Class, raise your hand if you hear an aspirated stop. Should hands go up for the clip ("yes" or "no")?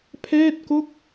yes